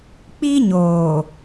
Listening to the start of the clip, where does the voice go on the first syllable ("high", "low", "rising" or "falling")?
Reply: high